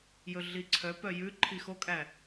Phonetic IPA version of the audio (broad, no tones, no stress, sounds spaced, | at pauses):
j ɵ ɮ i ǀʰ œ p œ j ʉ ǃʰ i x o kʼ æ